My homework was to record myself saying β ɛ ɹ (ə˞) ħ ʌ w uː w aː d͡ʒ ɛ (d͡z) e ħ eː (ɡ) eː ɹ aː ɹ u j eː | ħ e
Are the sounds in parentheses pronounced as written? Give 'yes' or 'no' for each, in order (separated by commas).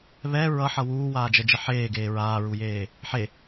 no, no, yes